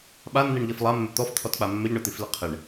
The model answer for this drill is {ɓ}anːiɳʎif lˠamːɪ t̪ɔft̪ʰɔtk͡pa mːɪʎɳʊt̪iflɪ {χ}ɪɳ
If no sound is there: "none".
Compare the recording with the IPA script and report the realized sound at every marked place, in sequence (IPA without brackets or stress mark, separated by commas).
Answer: ɓ, qʰ